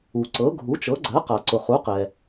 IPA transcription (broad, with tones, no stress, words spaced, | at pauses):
u˩ǀɤ˩˥ ɡʱu˩˥t͡ʃɤ˩˥ɡ͡ǀɜ˩˥qa˩ ǀʊ˩χu˩˥qɛ˩